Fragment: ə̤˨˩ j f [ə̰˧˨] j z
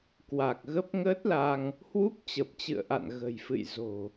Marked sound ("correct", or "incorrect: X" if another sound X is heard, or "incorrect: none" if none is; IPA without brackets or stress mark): incorrect: ɨ̰˧˨